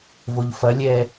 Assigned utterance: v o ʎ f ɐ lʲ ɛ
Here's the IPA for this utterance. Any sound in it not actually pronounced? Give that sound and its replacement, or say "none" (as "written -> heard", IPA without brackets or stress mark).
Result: none